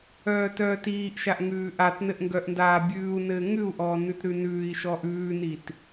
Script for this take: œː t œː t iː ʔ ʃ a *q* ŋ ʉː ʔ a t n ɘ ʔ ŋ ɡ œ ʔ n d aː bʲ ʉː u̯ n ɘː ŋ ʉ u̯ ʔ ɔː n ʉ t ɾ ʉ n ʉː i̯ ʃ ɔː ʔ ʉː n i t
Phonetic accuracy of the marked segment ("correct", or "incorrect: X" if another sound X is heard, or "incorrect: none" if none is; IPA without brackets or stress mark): incorrect: ʔ